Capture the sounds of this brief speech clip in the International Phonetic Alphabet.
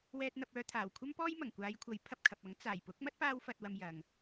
w ɛː˧ t̚ n̪ ɐ˧ p̚ œː˧ t̪ʰ aː˨˩ w kʷʰ ɐ˥ m p ɔː˥ j m ɐ˨˩ ŋ kʷ aː˨˧ j kʷʰ ɐ˨˥ j pʰ ɐ˧ p̚ kʰ ɐ˨ p̚ ɐ˨˥ ŋ t͡s aː˨˩ j p ʊ˨˥ k̚ m ɐ˥ t̚ p aː˥ w f ɐ˧ t̚ w ɐ˧ m j ɐ˨ ŋ

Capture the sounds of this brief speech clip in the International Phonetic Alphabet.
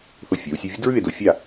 θ o˧˩ fʲ ɐː˩˧ w sʲ u˧ vʲ u˥ d ɹ ʉ˥˧ e̯ d o˧ fʲ a˥˧

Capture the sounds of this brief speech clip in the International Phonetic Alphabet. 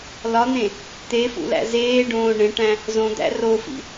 l ɒ n̪ ẽ | t̪ e f ṵ l æ̰ z eː ɖ õː ɳ ẽ ʈ æ̃ | z õ d̪ æ̰ r o f ḭ

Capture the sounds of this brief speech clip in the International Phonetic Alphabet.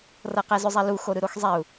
r ɤ q ɛ z ʏ zˤ ɛ l u x o ɾ ɯ ɾ o x zˤ ɛ u̯

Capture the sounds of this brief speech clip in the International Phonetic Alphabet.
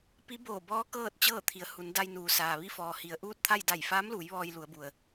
p i˧˥ b oː˧˩ b ɔː˧˥ k ɤː˥˨ t̚ t͡ɕ ɤː˥˨ t̪ʰ i˩˧ ə̯ h u˩˧ n d a˧ j n uː˩ s aː˩ ʋ i˥˨ f ɔː˩ h i˩ ə̯ ʔ uː˥˨ t̚ t̪ʰ a˥˨ j d a˧˩ j f aː˧˥ m l uː˩˧ j ʋ ɔː˧ j l u˩˧ ə̯ b u˩ ə̯

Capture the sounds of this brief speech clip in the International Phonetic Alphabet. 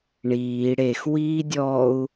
ɳ iː ɽ e x w iː dʲ ɔ u̯

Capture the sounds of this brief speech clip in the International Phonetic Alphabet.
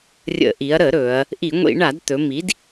rʲ ə̰˧˩˧ ʔ i˩˧ ɐ̯ ɾ ə˧˩˧ ɾ ɵ˩˧ ɐ̯ | ʔ i˧˩˧ ŋʷ ḭ˧˩˧ ɳ a˧˩˧ d t̪ ɵ˩˧ m i˩˧ d

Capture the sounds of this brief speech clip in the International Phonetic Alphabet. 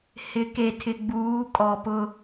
h ɪ˨˦ k e˨ tʰ ɪ˨ ɡ͡b uː˨˦ kʼ ɔ˨ p ʊ˦

